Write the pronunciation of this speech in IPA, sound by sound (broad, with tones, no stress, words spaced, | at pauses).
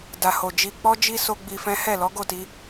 da˨ho˨d͡ʒi˧ k͡pɔ˦d͡ʒi˦ so˦ɡ͡bi˧fɛ̃˦ hɛ˦˨lɔ˨˦ɡo˦˨ti˧